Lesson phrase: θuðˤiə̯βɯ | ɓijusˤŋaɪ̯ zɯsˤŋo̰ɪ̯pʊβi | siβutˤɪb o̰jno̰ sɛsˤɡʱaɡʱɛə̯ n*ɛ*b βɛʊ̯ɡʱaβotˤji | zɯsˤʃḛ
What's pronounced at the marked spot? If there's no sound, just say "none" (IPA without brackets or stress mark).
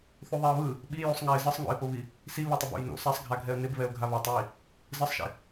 ɪ